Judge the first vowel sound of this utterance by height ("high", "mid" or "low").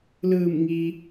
high